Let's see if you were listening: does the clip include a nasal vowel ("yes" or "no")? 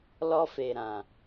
yes